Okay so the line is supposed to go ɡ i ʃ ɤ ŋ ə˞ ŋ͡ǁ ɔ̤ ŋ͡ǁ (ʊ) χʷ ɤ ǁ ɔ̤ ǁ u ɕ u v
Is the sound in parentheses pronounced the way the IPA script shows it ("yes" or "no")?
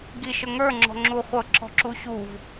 no